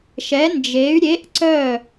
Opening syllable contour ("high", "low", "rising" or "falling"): rising